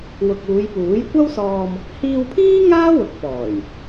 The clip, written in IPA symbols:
wʊ˨k̚uː˨˧jpuː˨˥j kʷɐ˥wsɔː˧m | hiː˧wpʰiː˥ ŋaː˥wʊ˨k̚pɔː˨˩j

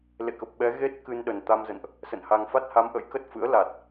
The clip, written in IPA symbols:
lḛ˧˨kə˨˩p̚ ɓɛ˨˦ ɣe˦˥t̚ kɨ˧nɗə˨˩n t̪a˧mzə̰˧˨nʔ | sə̰˧˨nha˧ŋ fa˦˥t̚ha˨˦mʔə̰˧˥j kə˦˥t̚fɨ̰˧˥ə̯ la˨˩t̚

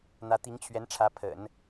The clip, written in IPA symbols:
n̪ä˧˥t̪i˧˥ŋt͡ɕʰɥɛ˧˥nʈ͡ʂʰä˧˥ pʰə̰˨˩˦n

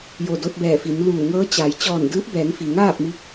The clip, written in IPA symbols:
jo˧˩do˧t̚bɛː˧˩fi˩˧n luː˧˩ŋɤː˧˥t͡ɕa˩˧j t͡ɕɔː˧˩ndɯː˧˥p̚bɛː˩˧ŋfi˩ ŋaː˥˨p̚ mi˧˥k̚

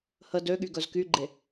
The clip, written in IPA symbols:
hə døɠy ɡœzkyɡ͡ǃe

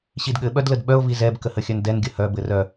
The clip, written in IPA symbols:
ɕidɠɘ ɓœdlədɓœo̯ vizɛb kəhəxʲœndɛn ɡʲəhœ bɘrœ

